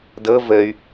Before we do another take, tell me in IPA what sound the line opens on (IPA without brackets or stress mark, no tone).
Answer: d